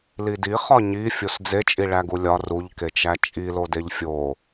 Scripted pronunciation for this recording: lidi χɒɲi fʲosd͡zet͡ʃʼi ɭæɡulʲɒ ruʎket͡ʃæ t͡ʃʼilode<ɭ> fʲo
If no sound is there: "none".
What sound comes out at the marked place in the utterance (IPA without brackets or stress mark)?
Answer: ʎ